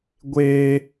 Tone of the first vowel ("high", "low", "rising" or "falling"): high